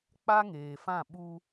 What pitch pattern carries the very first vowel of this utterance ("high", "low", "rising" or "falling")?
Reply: high